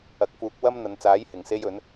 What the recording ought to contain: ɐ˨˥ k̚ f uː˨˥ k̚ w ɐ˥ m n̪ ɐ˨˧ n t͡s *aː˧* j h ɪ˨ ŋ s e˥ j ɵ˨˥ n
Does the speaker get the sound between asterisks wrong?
yes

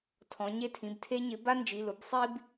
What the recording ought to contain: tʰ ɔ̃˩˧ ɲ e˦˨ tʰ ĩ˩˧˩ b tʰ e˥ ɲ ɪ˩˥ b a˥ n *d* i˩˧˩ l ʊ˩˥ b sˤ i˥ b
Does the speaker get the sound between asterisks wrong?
yes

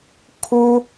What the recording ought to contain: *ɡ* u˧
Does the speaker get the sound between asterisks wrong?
yes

